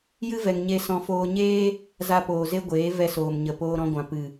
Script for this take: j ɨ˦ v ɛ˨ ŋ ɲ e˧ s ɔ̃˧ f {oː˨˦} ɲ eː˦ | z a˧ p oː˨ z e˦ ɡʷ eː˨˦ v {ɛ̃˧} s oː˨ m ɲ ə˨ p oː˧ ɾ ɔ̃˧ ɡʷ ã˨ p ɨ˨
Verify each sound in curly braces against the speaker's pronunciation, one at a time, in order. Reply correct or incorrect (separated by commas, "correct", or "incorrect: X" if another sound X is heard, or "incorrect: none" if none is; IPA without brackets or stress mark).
incorrect: oː˧, incorrect: ɛ˧